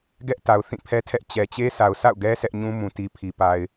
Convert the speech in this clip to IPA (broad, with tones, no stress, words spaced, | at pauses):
ɡɛ˦ʔta˨ʊ̯θĩ˦˨pʰɛ˦ tʰɛ˦ʔ t͡ɕɛ˨t͡ɕe˦ sʰa˨ʊ̯sa̰˦˨ʊ̯ɡɛ˦ sʰɛ˦ʔɲũ˦ mũ˨ti˨pʰi˨ pa˨ɪ̯